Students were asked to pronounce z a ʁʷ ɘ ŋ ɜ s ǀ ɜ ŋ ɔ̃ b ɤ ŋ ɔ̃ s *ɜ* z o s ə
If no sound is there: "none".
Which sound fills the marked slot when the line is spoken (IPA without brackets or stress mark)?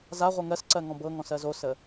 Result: ɜ